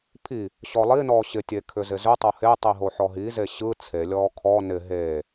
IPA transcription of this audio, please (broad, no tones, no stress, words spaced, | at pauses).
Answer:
pʰi | ɕɔlˠinɔː ɕɪtʲeː kʰʏzɪzʏtˤo he tˤiɦoħɔɦi zeɕɯ t͡sʰelʲɔː kʰɔ nɪ ɦeː